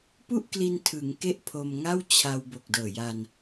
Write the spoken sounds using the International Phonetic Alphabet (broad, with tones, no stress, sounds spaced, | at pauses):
p u˥˩ ʔ k l i˧ n tʰ ɯ˩˦ ŋ k e˥˩ ʔ pʰ o˧ m ŋ a˥˩ w t͡ɕʰ a˧ w b o˨˩ k̚ d ɤː˨˩ j a˧ n